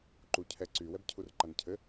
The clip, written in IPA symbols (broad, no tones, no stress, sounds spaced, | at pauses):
ǃ u cʰ ɛ ǀ y w ɛ b cʰ u r ǃ a n cʰ ɘ